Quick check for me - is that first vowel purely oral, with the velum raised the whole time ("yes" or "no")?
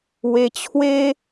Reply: yes